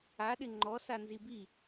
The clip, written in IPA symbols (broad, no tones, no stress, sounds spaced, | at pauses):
a ɗ ɪ ŋ͡ǃ ɔ s a n z i b i